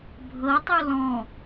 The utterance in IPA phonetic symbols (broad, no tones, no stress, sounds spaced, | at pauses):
bʱ ɤ tˤ u l ɔ̃